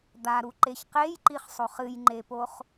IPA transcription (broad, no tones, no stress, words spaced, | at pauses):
d̪aɾuǃeç qejǃiχsˤoχ ɨjŋ͡ǃepoχ